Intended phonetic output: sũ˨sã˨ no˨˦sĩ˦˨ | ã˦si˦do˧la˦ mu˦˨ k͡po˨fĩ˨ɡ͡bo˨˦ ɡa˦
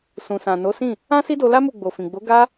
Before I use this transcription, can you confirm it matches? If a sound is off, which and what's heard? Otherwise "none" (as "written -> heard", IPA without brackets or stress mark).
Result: k͡p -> ɡ͡b